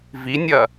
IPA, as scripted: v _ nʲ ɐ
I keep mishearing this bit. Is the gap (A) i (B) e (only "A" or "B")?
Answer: A